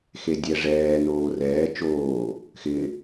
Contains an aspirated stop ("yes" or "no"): no